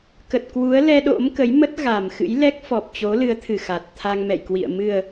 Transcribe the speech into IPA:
k ə˨˩ t̚ k w u˨˦ ə̯ l ɛ˧ ɗ o̰˧˥ m k ə˨˦ j m ə˦˥ t̚ ɣ a˨˩ m x ɨ̰˧˥ j l ɛ˦˥ k̚ f ɔ˨˩ p̚ t͡ɕ o˨˦ l ɨ˨˦ ə̯ t̪ʰ ɨ˧˩ x a˨˩ t̚ t̪ʰ a˧ ŋ m ɛ̰˧˨ j k w ḭ˧˨ ə̯ m ɨ˨˩ ə̯

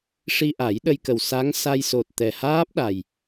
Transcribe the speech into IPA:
ʂ i˧ ʔ a˨˩˦ j ɗ ə˧ j k ə˨˩ w s a˧˥ ŋ s a˧ j s o˨˩ t̚ t̪ ɛ˨˩ h aː˦˥ p̚ ɗ a˨˩ j

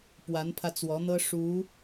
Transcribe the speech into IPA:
p w a˧˥ n pʰ ä˧ t͡s w ɔ˧˥ n̪ ɤ˥ ʂ u˧˥

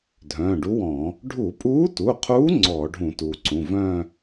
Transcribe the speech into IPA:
dʱ œ̃ː˩˧˩ ɖ u˧˥ w ɔ̃˧˩˧ | ɖʱ u˧˩˧ pʼ uː˧˥ t u˩˧˩ qʰ uː˧˥ ŋ͡ǀ ɔ˧˩˧ ɖʱ ũ˧˩˧ t uː˩ ǀ ũ˩˧˩ v œ̃ː˥˧

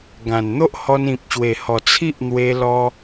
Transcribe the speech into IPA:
ɡ ã˨˩ n n̪ o˦ ʔ h ɔ˧ n ĩ˨ p̚ ɕ w e˨˩ h ɔ˨˩ t͡sʰ i˦ ʔ n̪ w e˧ l ɔ˧

